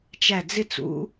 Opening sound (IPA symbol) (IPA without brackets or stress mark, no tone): t͡ʃ